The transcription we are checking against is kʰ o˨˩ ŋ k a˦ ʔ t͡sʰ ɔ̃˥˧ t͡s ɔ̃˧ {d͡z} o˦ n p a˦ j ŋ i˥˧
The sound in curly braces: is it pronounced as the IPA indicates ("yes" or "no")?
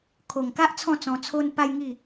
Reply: no